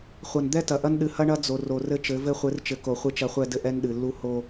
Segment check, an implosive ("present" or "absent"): present